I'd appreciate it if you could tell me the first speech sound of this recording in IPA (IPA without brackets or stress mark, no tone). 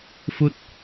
f